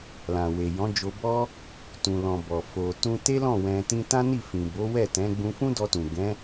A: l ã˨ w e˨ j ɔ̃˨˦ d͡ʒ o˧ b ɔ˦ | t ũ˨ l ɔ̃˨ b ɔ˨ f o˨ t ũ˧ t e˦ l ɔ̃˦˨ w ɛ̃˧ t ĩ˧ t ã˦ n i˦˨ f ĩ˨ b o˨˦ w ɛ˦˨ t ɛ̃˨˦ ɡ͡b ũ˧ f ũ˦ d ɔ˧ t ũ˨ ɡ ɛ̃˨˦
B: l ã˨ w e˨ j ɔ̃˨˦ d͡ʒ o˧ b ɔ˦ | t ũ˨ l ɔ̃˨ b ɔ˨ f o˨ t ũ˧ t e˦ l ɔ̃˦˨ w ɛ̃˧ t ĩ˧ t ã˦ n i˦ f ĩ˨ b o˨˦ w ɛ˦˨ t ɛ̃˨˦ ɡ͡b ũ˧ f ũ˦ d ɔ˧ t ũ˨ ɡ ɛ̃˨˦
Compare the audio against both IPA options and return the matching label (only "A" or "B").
A